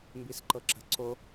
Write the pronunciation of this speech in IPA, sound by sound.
m b i s ǃ ɤ ǁ ə̤ ǀ o

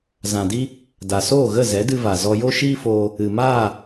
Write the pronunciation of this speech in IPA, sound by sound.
z ã˨ d i˧ | d a˨ s oː˦˨ ɣ ə˦˨ z ɛ˨˦ d ɨ˧ v a˨ z ɔ˧ j o˦ ʃ iː˦ f oː˧ | ɨ˨ m aː˦˨

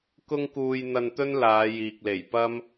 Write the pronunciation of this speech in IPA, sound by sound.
k ʊ˥ ŋ k uː˧ j n̪ ɐ˧ n t̪ ɵ˥ n l aː˨˧ j iː˨ k̚ l e˨˩ j p ɐ˥ m

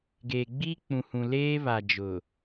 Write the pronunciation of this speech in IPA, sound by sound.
ɡ eː˨ ɡ͡b i˦ k͡p ũ˨ h ũ˨ l eː˦ β a˨ d͡ʒ ʊ˨

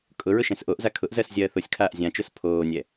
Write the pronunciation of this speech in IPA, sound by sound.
kʼ ʊ ɹ ʊ ʃ ɛ̃ s ʔ o ʔ z a kʰ ʊ ʔ z ɜ s zʲ ɜː θ o sʲ kʰ aː ʔ zʲ ã t͡ʃ ʊ s pʰ oː nʲ ɛ

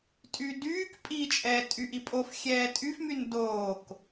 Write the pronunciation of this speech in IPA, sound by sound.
tʼ y d yː k pʼ i t͡ʃʼ ɛː tʼ y ʔ i pʼ o f xʲ ɛː tʼ y f m y n d oː k

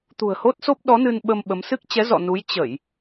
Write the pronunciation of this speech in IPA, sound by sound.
t̪ ṳ˨˩ ə̯ h o˦˥ t̚ s o˦˥ p̚ ɗ ɔ˨˦ n ɨ˧ n ɓ ə˧ m ɓ ə˨˦ m s ɨ˦˥ k̚ t͡ɕ ɛ˨˦ z ɔ̰˧˨ n u˨˦ j t͡ɕ ə˧˩˨ j

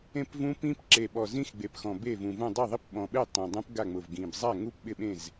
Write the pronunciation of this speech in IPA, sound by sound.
ẽ˥˩ p v ũ˦˥ p ĩ˦˥ p ǁ e˨˩ ɓ ɔ˨˩ z ĩ˦˥ x ɡ͡b e˨˩ p x ɔ̃˨˩ b e˥˩ v ũ˨˩ v ũ˥˩ dˤ i˥˩ ðˤ i˥˩ p ɓ ɔ̃˨˩ ɓ e˥˩ tˤ ẽ˨˩ dˤ ũ˦˥ p ɡ a˥˩ ŋ͡m ʊ˨˩ v ɡ ĩ˨˩ b zˤ a˥˩ ŋ u˥˩ p ɓ ɪ˥˩ ɓ ẽ˥˩ z

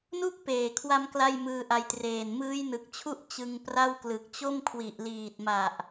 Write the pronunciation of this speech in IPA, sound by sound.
n u˥˩ k̚ p eː˨˩ kʰ w a˧ m k l a˥˩ j m ɯː˧ ʔ a˧ j t r eː˨˩ n m ɯː˦˥ j n ɯ˨˩ k̚ t͡ɕʰ u˥˩ ʔ t͡ɕ ɯ˧ ŋ p r a˥˩ w k l ɯ˨˩ k̚ t͡ɕ o˥˩ m kʰ w i˨˩ ʔ l iː˨˩ t̚ m a˨˩ ʔ

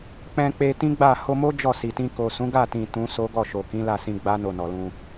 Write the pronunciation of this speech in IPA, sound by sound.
k͡p ɛ̃˧ k͡p e˧ t ĩ˦ ɡ͡b a˦˨ h o˧ m o˦ d͡ʒ ɔ˦˨ s i˨ t ĩ˧ k o˨ s ũ˨˦ ɡ a˦˨ t ĩ˨ t ũ˨˦ s o˦ ɡ ɔ˦˨ ʃ o˨ k ĩ˨˦ l a˦˨ s ĩ˧ ɡ͡b a˦ n o˦˨ n ɔ˨ l ũ˧

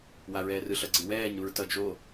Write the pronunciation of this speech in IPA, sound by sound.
w a ɹ ɛː r ɯ ɬ ʌ ɡ͡ǀ ɯ w ɛː ɲ ɾ u ɹ t ʌ d͡ʒ o

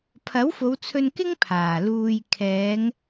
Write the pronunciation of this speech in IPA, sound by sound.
pʰ ɐ˨˥ w f o˨˧ w t͡sʰ ɵ˧ n k ɪ˥ ŋ pʰ aː˨˩ l uː˧ j kʰ ɛː˨˧ ŋ

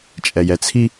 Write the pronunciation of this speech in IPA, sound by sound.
t͡ʃʼ ɛ j ɛ t͡sʰ i

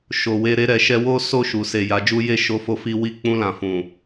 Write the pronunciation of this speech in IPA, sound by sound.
ʃ o˨ w e˧ ɾ e˧ ɾ ɛ˨ ʃ ɛ˧ w o˦ s o˦˨ ʃ u˨ s e˨ j a˨˦ d͡ʒ u˦ j e˦˨ ʃ o˧ f o˧ f i˧ w i˧ k͡p ũ˧ l ã˨ f ũ˨

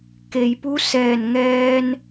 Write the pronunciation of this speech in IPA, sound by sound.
k e˩ j p u˧˥ s ɛː˧˩ n ŋ ɛː˧ n

